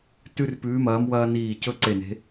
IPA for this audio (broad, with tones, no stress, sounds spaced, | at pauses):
t ʉ˦ r p ʉː˨˦ m ɐː˨˦ m w ɐː˦ n iː˧˩ c ɵ˦ ǀ e˧˩ n e̤˨˦